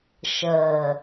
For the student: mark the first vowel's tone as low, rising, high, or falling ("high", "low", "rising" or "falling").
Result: low